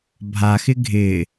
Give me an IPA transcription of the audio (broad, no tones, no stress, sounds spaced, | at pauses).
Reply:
bʱ a x ɪ ɡʱ ɪ